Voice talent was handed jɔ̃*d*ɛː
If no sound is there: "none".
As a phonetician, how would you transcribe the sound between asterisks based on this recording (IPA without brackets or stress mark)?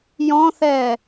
θ